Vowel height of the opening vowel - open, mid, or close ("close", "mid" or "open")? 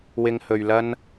close